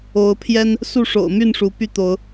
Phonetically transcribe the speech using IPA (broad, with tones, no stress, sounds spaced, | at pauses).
o˨˦ ʊ̯ pʰ j ɛ˦ n | s u˥˨ ʂ o̰˨˩ ʊ̯ m y˥˨ n ʂ u˨˦ p y˦ t̪ o˨˦ ʊ̯